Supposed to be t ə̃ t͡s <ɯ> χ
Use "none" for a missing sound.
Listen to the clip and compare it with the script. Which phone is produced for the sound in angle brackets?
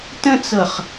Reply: ɤ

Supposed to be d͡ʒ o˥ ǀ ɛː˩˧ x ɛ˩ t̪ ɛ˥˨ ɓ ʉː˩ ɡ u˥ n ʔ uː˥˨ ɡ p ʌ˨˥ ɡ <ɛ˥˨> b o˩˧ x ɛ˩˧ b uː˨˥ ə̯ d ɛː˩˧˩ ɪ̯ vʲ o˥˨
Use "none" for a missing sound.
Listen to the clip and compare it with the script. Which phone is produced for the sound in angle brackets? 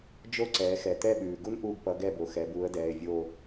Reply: ɛ˥˨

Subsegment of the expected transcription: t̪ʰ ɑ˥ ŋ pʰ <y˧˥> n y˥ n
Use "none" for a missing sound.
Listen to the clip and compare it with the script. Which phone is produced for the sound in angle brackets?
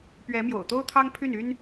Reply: y˥˩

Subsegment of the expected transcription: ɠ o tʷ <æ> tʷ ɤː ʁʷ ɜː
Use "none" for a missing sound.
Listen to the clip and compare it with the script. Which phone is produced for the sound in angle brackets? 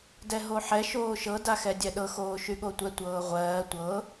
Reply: ɛ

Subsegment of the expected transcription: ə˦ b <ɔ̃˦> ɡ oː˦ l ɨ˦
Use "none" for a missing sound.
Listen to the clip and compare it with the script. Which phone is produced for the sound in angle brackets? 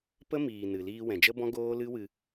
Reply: ɔ̃˦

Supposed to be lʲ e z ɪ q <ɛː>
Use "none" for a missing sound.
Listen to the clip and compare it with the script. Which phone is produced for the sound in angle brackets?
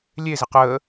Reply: əː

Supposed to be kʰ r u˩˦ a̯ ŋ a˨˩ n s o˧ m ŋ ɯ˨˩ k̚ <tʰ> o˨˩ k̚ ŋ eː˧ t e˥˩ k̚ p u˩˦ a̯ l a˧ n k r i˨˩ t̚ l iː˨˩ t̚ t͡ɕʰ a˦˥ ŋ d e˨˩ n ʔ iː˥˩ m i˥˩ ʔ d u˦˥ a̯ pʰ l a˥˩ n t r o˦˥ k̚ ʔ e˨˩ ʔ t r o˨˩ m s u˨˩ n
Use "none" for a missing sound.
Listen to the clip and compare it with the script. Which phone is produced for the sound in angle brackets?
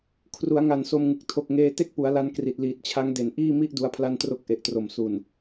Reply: tʰ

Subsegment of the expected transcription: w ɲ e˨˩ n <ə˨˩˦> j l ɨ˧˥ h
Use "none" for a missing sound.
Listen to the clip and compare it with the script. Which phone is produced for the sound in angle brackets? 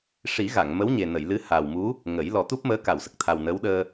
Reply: ə˨˩˨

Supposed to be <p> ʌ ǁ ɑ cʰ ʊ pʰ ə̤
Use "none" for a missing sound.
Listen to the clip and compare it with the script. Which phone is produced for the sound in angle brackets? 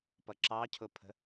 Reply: p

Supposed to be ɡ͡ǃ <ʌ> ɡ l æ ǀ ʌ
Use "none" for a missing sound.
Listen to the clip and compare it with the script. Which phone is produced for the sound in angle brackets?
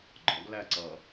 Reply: ɒ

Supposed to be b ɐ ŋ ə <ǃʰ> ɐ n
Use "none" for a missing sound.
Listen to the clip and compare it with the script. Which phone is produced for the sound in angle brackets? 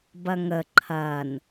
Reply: ǃʰ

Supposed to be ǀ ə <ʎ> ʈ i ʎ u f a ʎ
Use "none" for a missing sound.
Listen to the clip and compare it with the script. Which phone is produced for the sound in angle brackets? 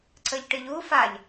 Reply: ʎ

